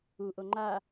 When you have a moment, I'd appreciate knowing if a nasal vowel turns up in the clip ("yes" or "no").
no